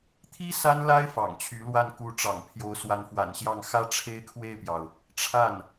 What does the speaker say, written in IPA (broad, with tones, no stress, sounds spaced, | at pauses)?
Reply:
t̪ʰ i˥ s a˥ n l a˥ ɪ̯ f ɑ̰˨˩ ŋ t͡ɕʰ y˧˥ l w a˥˩ n k u˧˥ ʈ͡ʂ ɑ̰˨˩ ŋ pʰ j o˧˥ ʊ̯ s w a˧˥ n f w a̰˨˩ n ɕ j ɑ˥˩ ŋ x ä˥ ʈ͡ʂʰ e˥ ɪ̯ kʰ w e˥˩ ɪ̯ p j ɑ˩ ʊ̯ | ʈ͡ʂʰ a˥˩ n